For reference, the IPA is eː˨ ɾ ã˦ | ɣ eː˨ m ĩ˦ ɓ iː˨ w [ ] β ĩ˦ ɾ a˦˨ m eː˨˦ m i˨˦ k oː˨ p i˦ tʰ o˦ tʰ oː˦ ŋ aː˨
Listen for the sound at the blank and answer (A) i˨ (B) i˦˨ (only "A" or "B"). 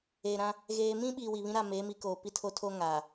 A